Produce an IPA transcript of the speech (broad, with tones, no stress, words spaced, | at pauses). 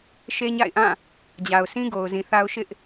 ʃe˦ɲa̰˦˨ɪ̯ʔã˦˨ | d͡ʑa˨ʊ̯sʰĩ˦ɡo˨ʊ̯ zĩ˨θa˦ʊ̯ʃɪ˦ʔ